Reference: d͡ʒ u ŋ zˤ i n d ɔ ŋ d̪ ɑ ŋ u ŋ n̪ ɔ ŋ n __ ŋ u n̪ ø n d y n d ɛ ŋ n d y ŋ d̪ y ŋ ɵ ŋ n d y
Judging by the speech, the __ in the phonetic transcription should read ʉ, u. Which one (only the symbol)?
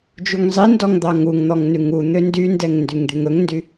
ʉ